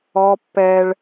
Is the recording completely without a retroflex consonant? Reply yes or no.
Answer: no